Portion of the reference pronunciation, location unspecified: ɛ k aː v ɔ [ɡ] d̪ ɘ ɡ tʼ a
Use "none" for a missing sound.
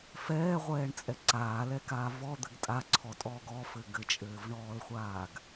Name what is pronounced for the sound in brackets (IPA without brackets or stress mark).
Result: none